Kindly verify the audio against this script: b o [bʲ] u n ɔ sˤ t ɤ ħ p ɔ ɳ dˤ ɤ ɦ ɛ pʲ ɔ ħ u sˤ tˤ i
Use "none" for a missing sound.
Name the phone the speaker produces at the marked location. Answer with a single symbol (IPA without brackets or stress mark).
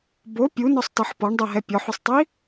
pʲ